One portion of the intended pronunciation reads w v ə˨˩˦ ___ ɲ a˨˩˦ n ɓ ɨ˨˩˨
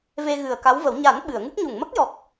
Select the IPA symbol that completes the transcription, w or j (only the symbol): w